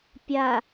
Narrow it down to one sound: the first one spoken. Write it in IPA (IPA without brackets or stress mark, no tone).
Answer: pʲ